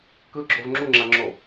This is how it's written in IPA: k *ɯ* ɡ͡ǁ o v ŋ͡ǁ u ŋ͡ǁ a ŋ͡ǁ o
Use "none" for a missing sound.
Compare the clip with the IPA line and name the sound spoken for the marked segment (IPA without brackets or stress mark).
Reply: ɯ